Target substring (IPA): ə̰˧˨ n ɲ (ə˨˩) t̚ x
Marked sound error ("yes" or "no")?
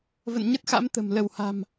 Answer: yes